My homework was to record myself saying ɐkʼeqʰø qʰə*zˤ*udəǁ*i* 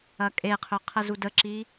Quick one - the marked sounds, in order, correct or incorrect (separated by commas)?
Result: incorrect, correct